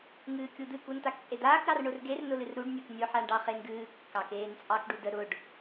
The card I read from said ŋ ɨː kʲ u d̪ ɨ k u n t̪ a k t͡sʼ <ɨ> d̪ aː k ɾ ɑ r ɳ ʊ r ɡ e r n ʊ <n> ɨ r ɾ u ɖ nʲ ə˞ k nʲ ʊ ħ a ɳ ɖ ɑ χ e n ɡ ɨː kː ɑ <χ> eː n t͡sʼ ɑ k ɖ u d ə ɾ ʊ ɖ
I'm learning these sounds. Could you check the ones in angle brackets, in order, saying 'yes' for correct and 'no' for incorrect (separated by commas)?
no, no, no